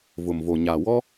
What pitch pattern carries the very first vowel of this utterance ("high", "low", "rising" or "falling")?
low